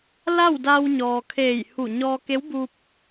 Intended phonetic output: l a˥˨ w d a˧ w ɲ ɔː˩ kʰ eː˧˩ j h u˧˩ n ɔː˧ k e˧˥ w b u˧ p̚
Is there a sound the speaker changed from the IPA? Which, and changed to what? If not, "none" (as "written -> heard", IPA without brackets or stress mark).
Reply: n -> ɲ